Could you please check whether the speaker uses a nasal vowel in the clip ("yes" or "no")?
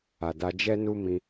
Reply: yes